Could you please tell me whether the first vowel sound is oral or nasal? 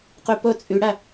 oral